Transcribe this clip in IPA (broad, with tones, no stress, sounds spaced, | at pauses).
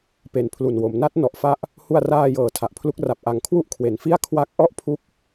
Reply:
p e˨˩ n pʰ l u˨˩ n w o˩˦ m n a˦˥ t̚ n ɔ˨˩ ʔ f a˦˥ ʔ | h u˧ a̯ r aː˧ j ɤː˨˩ tʰ a˨˩ ʔ pʰ l u˦˥ k̚ r a˨˩ p̚ ʔ a˨˩ ŋ kʰ w u˥˩ ʔ kʰ w e˩˦ n f i˥˩ a̯ kʰ w a˦˥ k̚ ʔ ɔ˦˥ ʔ pʰ u˦˥ k̚